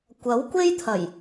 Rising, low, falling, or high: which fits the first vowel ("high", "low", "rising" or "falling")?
rising